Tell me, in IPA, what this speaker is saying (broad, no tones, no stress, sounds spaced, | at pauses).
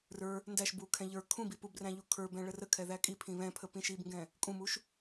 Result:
r ə˞ | n d æ ʃ b u kʰ ɛ̃ ʎ ə˞ kʰ ũ b i p u b r æ̃ ʎ u kʰ ə˞ b ɛ̃ ɭ ə r ə kʰ ɛ ð æ kʼ i pʰ ĩ β ɛ̃ pʰ ə p ĩ ʃ i b ŋ ɡ ɛ̃ | kʼ ũ m u ʃ